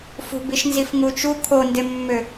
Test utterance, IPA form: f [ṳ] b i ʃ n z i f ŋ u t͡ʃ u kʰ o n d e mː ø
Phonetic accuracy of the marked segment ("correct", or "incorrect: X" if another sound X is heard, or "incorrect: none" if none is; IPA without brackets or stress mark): correct